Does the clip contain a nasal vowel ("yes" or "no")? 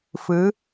no